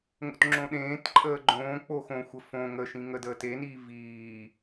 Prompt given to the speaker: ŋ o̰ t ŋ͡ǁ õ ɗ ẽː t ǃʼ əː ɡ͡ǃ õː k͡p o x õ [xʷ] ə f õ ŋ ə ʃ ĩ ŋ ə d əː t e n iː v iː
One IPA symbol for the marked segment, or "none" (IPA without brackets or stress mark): xʷ